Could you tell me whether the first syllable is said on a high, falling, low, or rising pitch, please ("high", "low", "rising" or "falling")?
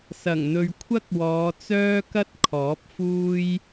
low